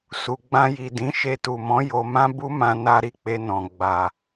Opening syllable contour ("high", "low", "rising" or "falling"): low